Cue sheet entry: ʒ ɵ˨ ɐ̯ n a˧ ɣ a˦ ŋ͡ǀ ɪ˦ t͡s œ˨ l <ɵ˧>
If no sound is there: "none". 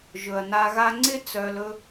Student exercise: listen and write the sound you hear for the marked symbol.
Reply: ɵ˧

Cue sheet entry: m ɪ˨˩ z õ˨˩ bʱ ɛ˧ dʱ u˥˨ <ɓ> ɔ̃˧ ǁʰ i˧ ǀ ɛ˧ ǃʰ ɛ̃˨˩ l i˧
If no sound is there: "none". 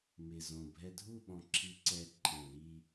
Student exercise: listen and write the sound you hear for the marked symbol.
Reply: ɓ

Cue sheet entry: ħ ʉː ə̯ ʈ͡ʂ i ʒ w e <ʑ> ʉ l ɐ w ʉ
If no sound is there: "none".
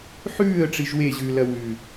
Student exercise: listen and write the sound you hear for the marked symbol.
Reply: ʑ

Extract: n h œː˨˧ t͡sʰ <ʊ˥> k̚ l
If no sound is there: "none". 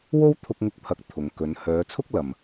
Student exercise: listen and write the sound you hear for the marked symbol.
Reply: ʊ˥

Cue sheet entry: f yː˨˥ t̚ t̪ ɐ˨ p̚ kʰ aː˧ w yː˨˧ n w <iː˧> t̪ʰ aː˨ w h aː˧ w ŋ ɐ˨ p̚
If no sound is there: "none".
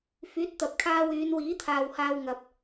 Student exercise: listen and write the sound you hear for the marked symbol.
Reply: iː˨˥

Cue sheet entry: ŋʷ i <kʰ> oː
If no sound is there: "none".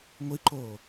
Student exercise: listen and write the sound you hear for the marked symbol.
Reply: ǃ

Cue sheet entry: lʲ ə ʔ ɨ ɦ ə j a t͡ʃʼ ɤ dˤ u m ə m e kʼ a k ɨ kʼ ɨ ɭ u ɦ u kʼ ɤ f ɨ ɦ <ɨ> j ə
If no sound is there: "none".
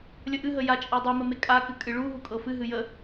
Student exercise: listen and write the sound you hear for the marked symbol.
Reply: ɨ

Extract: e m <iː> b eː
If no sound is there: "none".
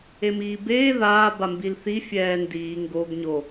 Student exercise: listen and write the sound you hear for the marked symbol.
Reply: iː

